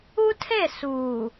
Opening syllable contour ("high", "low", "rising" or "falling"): high